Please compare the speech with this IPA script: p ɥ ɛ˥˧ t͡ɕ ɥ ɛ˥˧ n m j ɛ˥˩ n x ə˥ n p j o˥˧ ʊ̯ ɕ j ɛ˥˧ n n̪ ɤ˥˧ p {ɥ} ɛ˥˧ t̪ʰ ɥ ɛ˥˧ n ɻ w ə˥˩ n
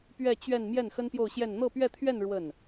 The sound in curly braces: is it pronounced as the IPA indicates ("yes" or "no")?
yes